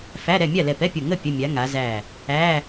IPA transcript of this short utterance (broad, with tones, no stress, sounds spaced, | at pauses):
f æ˧˥˧ ɾ ɛ˥˨ mʲ a˥˨ l ɛ˧˩ p ɛ˧˥˧ pʲ o˧˩ ŋ ə˥˨ pʲ ə˧˥˧ mʲ a˨˥ ŋ a˨˥ z æ˥˨ | æ˧˥˧